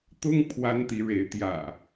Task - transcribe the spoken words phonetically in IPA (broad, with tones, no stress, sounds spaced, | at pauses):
t̪ ʊ˦ ŋ pʰ w a˦ n t̪ i˨˦ ɻ e˨˦ ɪ̯ t̪ j ä̰˨˩